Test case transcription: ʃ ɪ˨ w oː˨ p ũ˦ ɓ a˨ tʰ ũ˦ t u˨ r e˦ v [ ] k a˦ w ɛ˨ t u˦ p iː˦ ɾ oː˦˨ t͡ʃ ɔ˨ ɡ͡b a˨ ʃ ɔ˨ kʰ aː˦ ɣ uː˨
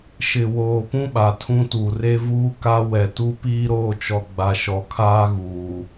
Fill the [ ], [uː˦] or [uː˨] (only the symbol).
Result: uː˦